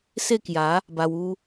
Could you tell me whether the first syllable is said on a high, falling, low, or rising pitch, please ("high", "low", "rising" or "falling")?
falling